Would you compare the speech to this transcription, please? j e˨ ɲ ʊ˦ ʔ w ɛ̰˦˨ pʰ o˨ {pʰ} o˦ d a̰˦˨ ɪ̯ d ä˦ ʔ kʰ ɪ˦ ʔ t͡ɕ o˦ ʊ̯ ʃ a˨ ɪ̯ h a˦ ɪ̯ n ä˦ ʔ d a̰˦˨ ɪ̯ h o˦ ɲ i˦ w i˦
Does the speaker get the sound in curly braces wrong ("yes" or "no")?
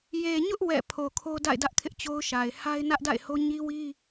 yes